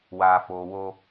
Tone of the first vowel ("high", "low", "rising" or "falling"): low